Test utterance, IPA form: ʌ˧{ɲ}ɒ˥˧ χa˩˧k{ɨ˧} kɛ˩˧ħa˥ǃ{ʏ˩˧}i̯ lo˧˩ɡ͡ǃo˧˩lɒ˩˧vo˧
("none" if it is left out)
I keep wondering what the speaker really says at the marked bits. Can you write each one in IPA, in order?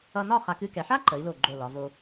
n, ɨ˥˧, ə˩˧

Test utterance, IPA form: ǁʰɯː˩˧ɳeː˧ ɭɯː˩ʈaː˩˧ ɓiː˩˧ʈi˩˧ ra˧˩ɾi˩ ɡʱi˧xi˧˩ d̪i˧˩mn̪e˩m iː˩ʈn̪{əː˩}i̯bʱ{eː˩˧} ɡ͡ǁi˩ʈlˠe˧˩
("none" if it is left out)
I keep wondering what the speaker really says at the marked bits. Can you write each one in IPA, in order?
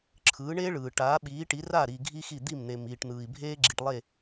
ɯː˩, eː˧

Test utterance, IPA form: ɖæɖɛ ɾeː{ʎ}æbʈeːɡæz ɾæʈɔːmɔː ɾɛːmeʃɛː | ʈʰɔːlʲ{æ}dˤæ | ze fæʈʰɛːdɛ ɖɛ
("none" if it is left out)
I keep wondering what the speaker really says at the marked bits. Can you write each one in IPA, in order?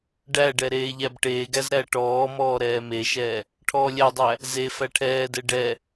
ʎ, æ

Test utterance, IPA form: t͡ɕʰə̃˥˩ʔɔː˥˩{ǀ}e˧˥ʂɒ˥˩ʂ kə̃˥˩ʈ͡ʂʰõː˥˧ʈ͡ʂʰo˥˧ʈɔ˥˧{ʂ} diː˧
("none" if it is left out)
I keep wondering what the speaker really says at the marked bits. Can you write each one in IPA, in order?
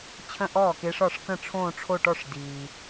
k, ʂ

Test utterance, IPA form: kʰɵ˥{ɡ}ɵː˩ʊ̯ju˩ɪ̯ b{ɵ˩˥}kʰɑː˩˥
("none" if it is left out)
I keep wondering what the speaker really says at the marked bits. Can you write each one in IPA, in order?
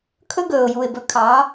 ɡ, ɵ˩˥

